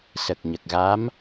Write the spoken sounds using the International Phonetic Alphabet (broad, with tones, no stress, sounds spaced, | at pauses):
s ə˨˩ k̚ ɲ ə˨˩ k̚ ɣ a˧˥ m